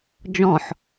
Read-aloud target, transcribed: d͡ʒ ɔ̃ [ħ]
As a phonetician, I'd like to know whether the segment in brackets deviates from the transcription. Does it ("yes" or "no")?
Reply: no